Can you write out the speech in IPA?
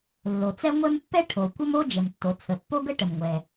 lː o˩ t͡s ɛ˥ ŋʷ ɛ˥ m pː ɛ˥ ʈʰ o˩ kʷ ə˥ m o˥ d͡ʒ ə˩ m tː o˩ t͡sʰ ə˩ pː o˥ ɡ ə˥ ʈ ə˩ m ŋʷ ɛ˩

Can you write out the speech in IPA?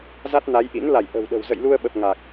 z a˦˥ t̚ n a˨˦ j ʔ ḭ˧˥ n l a˧˩ j ʔ ə̤˨˩ w ɗ ə̤˨˩ w z ə̰˧˨ j l u˧ ə̯ ɓ ə˨˩ p̚ ŋ a˨˩ k̚

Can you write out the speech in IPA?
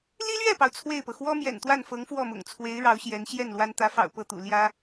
l i˥ l ɥ ɛ˥˩ p ɑ˩ ʊ̯ t͡sʰ w e˥˩ ɪ̯ p ɤ˩ x w ɔ˥ m j ɛ̰˨˩ n t̪ w a˥˩ n f ɤ˧˥ ŋ f w ɔ˥˩ m ʊ̰˨˩ ŋ t͡sʰ w e˧˥ ɪ̯ ɻ ɑ˧˥ ʊ̯ ɕ j ɛ˧˥ n ɕ j ɛ˥˩ n l w a˥ n t̪ ä˧˥ f ɑ̰˨˩ ʊ̯ p ɤ˥˩ t̪ ṵ˨˩ l j ä˥

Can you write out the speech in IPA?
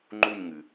ŋ͡ǃ u˥˧ ɲ ŋ ɨ˩

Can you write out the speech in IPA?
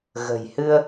ɣ ə̤ː˨˩ j h ɨ˧ ə̯

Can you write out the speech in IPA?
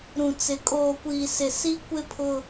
ɾ ũ˨ t͡s ɪ˨˦ kʼ oː˨ kʷ iː˨ s ɪ˨ s i˦ kʷ ɪ˦ pʰ ʊ˦

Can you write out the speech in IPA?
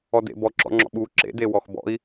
ɔ d ḛ b ɔ ǁ ɔ̰ ŋ͡ǁ ɔ̰ ɓ u ǁ ḛ d e w ɔ x b ɔ̰ i̯

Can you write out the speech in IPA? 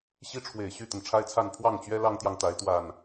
ɕ i˦ ʈ͡ʂʰ w e˨˩ ɪ̯ ɕ y˥˨ t̪ ə˩ n ʈ͡ʂʰ a˦ ɪ̯ t͡sʰ a˥˨ n pʰ w ɑ˥˨ ŋ t͡ɕ ɥ ɛ˦ l ɑ˦ ŋ t̪ j ɑ˨ ŋ t̪ a˨˦ ɪ̯ t̪ w a˨˩ n

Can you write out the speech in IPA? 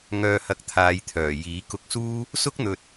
ŋ œː˧ h ɐ˧ k̚ t̪ʰ aː˨˧ j t̪ʰ œː˨˩ j iː˨˥ k ʊ˧ k̚ s uː˥ | s ʊ˥ k̚ n̪ ɵ˨ t̚

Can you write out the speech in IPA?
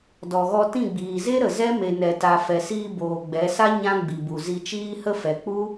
d ɔ˨ ɣ ɔ˧ t ĩ˦˨ ɡ͡b iː˨ z e˦ ɾ ə˨ z ɛ˦ m e˨ n ɛ˨ t a˨ f ɛ˨ s iː˧ b oː˨ ɡ͡b ɛ˨˦ s a˦ ɲ ã˦ ɡ͡b i˨ b u˨ z i˧ t͡ʃ iː˦ h ə˦ f ɛ˨ k͡p u˦

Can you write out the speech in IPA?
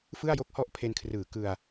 f ɯ˥˩ a̯ j o˥˩ k̚ h ɔ˥˩ ʔ pʰ e˧ n kʰ r ɯː˩˦ k ɯ˧ a̯

